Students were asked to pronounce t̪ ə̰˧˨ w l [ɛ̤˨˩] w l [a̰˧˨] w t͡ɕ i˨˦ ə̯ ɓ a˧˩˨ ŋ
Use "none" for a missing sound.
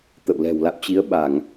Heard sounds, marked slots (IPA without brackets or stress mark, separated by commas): ɛ̤˨˩, a̰˧˨